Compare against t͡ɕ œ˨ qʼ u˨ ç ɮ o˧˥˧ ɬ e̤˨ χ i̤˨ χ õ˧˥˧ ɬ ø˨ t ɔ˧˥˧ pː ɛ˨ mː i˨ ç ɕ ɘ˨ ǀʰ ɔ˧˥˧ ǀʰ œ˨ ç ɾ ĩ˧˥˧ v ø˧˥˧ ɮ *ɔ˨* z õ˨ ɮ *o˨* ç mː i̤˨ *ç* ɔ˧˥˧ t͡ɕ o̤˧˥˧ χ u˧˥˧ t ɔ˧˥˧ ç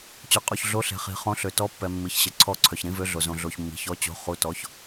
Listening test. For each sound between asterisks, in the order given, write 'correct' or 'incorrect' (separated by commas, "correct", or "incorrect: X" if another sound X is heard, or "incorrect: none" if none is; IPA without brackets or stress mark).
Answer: incorrect: o˨, correct, correct